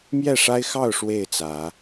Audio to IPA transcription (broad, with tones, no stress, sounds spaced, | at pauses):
m j ɛ˥˨ ʂ a˦ ɪ̯ x ɑ˥˨ ʊ̯ ʂ w e˥˨ ɪ̯ t͡s ä˨˦